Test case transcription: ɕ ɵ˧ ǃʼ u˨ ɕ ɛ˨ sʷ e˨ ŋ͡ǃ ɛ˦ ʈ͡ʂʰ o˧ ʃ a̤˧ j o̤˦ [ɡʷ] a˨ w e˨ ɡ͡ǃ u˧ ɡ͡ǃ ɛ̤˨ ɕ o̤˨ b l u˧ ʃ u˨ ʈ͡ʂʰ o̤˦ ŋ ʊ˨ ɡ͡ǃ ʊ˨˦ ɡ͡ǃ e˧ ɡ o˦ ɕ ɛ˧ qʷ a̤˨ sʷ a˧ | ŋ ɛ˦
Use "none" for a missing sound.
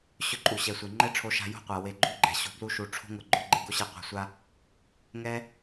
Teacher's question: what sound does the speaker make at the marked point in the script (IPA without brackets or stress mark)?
qʷ